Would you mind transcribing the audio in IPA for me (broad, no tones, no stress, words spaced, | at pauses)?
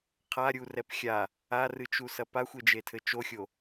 qʰaɾʲurɛp xʲa | arɨt͡ʃusɐ paxʷed͡ʒetʰɘ t͡ʃoxʲo